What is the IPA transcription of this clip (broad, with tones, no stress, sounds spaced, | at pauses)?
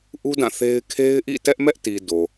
ʔ u˦ d ã˦˨ θ e˦ ɪ̯ kʰ e˦ ɪ̯ ʔ ḭ˦˨ t ɛ˦ ʔ m ɛ˦ ʔ t i˨ d o˨